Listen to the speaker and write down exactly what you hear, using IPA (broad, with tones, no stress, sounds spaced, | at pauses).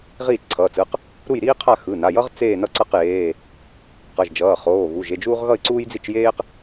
ʁ iː˥˨ t͡ʃ ǀʰ ʌː˩˧˩ t͡s ɯ˩˧˩ q | ɾ u˥˨ j ɾ iː˥ qʰ a˥˨ x ɯ˩˧˩ n a˩˧˩ j ʌ˥ ʁ t͡s eː˥˨ n ʌ˥˨ ǀ ʌ˥˨ q j eː˩˧˩ | q ʌ˩˧˩ ʒ d͡ʒ ʌː˩˧˩ χ oː˩˧˩ ɣ u˩˧˩ ʒ e˥˨ d͡ʒ uː˥ ʁ ɣ ʌ˥˨ ɪ̯ ǀ uː˥ j d͡z i˥˨ t͡ʃ j eː˥ q